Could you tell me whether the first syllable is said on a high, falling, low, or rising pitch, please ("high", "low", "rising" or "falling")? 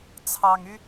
low